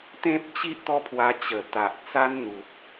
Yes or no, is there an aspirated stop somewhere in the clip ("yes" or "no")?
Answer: yes